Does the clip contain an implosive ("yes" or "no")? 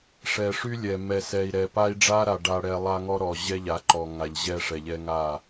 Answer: no